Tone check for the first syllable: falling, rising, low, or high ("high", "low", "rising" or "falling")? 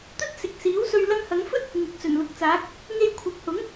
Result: high